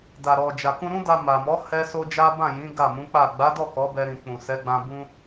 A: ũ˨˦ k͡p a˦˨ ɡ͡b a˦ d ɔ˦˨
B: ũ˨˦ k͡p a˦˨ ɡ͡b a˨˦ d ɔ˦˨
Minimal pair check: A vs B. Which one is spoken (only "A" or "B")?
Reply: B